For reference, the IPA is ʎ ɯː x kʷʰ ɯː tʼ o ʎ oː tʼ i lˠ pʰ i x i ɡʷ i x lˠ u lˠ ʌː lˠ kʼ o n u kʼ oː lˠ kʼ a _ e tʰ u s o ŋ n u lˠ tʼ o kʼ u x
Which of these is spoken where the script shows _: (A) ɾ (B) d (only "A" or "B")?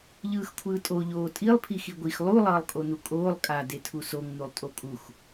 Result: B